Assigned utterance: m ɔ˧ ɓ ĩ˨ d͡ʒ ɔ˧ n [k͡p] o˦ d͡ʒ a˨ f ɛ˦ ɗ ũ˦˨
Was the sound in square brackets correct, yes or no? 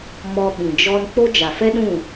yes